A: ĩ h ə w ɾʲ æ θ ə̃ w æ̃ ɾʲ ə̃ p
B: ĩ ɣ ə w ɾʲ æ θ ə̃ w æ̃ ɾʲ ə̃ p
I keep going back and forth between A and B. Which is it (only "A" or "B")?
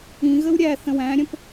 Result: B